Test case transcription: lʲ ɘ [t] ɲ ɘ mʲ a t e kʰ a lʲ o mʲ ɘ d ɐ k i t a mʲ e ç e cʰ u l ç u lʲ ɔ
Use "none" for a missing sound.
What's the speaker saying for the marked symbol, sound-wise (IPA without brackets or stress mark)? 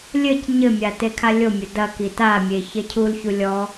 c